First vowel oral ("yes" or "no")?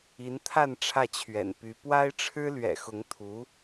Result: yes